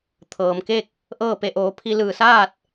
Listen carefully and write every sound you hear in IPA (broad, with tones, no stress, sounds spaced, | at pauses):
t̪ʰ ɤː˩ m k e˥˨ k̚ | ʔ ɤː˥˨ p e˧ ʔ oː˩˧ pʰ i˧ l ɯː˧˩ s aː˥˨ t̚